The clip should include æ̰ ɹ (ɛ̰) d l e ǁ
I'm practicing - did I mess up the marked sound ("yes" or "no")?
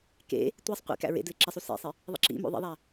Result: yes